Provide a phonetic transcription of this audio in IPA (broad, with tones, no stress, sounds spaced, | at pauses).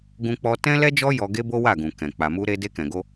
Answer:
ɡ ũ˧ k͡p ɔ˧ t ɛ̃˦ l ɛ˦ d͡ʒ ɔ˦ j ɔ˧ ɡ e˦ b o˦ w a˦˨ ɡ ũ˨ k ɛ̃˨ k͡p a˨ m u˧ ɾ e˧ d e˧ k ɛ̃˨ ɡ o˧